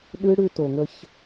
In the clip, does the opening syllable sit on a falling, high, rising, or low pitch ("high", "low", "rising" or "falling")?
high